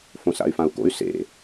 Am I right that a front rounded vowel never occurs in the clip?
no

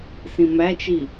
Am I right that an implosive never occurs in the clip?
yes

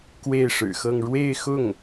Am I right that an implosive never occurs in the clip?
yes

